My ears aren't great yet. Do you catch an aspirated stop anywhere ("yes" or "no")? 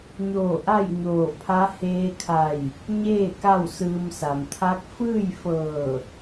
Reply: yes